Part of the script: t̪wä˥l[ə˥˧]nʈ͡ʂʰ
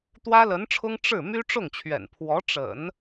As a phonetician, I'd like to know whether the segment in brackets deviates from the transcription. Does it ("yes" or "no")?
yes